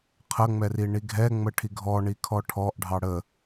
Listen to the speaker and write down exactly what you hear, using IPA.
qʰ ə ŋ͡m ɛ r i ɳ i ɡʱ ɛ ŋ͡m ə ʈʰ i ɡʱ ɔ ɳ i kʰ ɔ ʈʰ ɔ ʔ ɖʱ ɑ ɽ ə

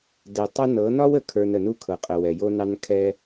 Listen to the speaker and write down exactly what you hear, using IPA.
d ɛ˨ tˤ ə˦ n ɤ˨˦ n ɒ˦ w ə˨ kʰ ə˞˨ n ə˨ n u˦ kʰ ɤ˨ qʼ ə˨ w ɛ˨ j o˦ n ɑ˦ n kʰ ɛ˦

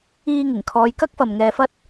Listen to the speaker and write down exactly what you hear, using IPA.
iː˧ ŋ ɪ˨˩ ŋ kʰ ɔː˨˧ j k ɐ˥ k̚ f ɐ˨ m ŋ ɛː˧ f ɐ˥ t̚

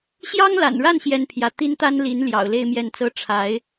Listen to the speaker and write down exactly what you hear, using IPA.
ɕ j ɑ˥ ŋ l a̰˨˩ n ɻ a˥˩ n ɕ j ɛ˥ n pʰ j ä˧˥ t̪ i˥ n t̪ a˥ n l i˧˥ n l j ɑ̰˨˩ ʊ̯ l e˥˧ ɪ̯ m j ɛ˥˩ n t͡s ɤ˥ ʈ͡ʂʰ a˧˥ ɪ̯

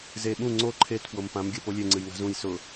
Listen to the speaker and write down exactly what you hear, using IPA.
z e ɓ ũ ŋ͡ǀ o ǃʰ e t p w o m p ã m ɡʲ ɜ p o lʲ e ŋ͡ǀ ɨ j ŋ a̤ z ũ j s ʊ

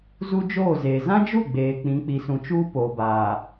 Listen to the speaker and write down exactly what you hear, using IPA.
z u˦ d͡ʒ oː˦˨ z eː˨ z ã˦ d͡ʒ u˦˨ ɡ͡b eː˨ k͡p ĩ˨˦ k͡p i˨ s ũ˨ t͡ʃ uː˦ p oː˨ b aː˨

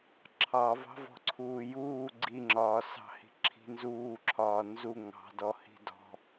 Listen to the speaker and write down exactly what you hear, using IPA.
ǁʰ ɑ v ɑ̤ v ɔ̤ ǀʰ uː j uː ɡ͡ǀ i ŋ͡ǁ ɒː s ɑ̤ h i̤ ǁʰ i̤ n z uː ǁʰ ɒː n z u ŋ ɑ̤ d ɔ h i̤ d ɔ̤

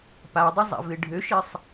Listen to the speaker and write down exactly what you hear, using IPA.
p a dˤ ə zˤ a̰ v ɪ ɖʱ ø ʃ ɪ sˤ

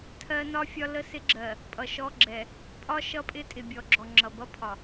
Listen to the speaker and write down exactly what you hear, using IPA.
tʰ ɜ˦ n ɒ˦ fʲ ɒ˦ l ə˦ s ɪ˦ ɡ͡ǁ ɜ˨ | pʼ ʌ˨ ʃ ɔ˦ ɡ͡ǁ ɛ˨ | pʼ ɒ˦ ʃ ʌ˦ pʼ ɪ˦ tʼ ɪ˨ bʲ ɔ˨ ɡ͡ǁ ɔ˨ ŋ͡ǁ ʌ˨ b ʌ˦ pʰ ɒ˨

